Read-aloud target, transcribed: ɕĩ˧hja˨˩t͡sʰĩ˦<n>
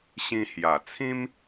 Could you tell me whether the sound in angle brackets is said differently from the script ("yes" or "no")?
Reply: yes